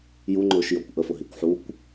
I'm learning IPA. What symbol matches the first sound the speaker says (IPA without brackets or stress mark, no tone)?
j